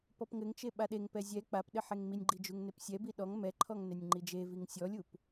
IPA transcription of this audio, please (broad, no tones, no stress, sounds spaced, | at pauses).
p ɔ p ŋ ɘ ŋ t͡ʃ e ɓ a ɗ e ŋ p ɛ zʲ ɛ k͡p a p ɗ ɘ ħ e ŋ m i nʲ ɡ͡ǃ i d͡ʒ u ŋ n e p sʲ ɛ b i ɗ ɔ ŋ m ɛ ǃʰ ɔ ŋ n e nʲ ŋ͡ǃ i d͡ʒ e v i ŋ sʲ ɔ lʲ u p